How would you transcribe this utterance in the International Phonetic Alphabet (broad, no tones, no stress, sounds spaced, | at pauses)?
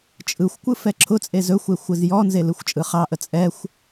t͡ʃʼ ɯ xʷ kʷ ɯ f ɛ ǁʰ ʊ t͡sʼ e z ɵ xʷ e xʷ ɯ z j ɔ n z e l ɯ xʷ t͡ʃʼ ɯ χ ɑ ʔ ə t͡sʼ ɛ xʷ